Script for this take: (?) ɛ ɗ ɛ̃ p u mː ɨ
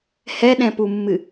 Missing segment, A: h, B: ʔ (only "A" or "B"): A